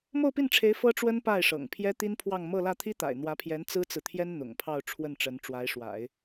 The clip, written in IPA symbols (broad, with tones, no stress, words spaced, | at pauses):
mo˥˧ʊ̯pi˥˩nʈ͡ʂʰe˧˥ɪ̯ fɤ˥ ʈ͡ʂwə˥n pa˥˩ɪ̯ʂɤ̰˨˩ŋ pʰjɛ˥t̪i˥npʰwɑ˥˧ŋ mɤ˥˧lä˥˩ t̪ʰi˥t̪a̰˨˩ɪ̯n̪wä˧˥pʰjɛ˧˥n t͡sɹ̩˥t͡sɹ̩˨t̪ʰjɛ˥n n̪ʊ̰˨˩ŋpʰɑ˥˧ʊ̯ ʈ͡ʂʰwə˥˩nʈ͡ʂə˧˥n ʈ͡ʂwa˧˥ɪ̯ʂwa̰˨˩˦ɪ̯